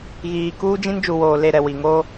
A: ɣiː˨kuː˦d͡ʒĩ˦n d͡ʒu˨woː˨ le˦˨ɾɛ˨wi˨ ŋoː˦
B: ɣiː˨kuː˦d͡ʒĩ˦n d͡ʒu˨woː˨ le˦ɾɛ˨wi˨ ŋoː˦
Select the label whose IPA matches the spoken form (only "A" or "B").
A